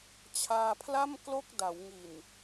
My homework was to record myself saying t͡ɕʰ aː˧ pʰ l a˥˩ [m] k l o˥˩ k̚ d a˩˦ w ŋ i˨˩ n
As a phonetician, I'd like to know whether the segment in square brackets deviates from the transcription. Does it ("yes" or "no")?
no